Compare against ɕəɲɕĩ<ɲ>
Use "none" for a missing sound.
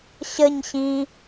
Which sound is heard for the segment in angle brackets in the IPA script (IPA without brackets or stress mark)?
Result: none